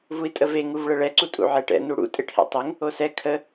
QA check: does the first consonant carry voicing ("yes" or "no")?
yes